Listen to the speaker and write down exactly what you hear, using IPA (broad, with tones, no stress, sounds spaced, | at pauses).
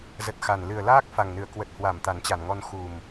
z ə˨˩ t̚ x a˨˩ n l ɨ˨˩ ə̯ l aː˦˥ k̚ f a˨˩ ŋ n ɨ˧˩ ə̯ k w ə˨˩ t̚ h w a˧˩ m t̪ a˨˩ n t͡ɕ a˧˩ n ŋ ɔ˧ n x u˨˩ m